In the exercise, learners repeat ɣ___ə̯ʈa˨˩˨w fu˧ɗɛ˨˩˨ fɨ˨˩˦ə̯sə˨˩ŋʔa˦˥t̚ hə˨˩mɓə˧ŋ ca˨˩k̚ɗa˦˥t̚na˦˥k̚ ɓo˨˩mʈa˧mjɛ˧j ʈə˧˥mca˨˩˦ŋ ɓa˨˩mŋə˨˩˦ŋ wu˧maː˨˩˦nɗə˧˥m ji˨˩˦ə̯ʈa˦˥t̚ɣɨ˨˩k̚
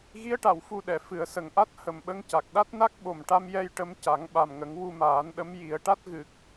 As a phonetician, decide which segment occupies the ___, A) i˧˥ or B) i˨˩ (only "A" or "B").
A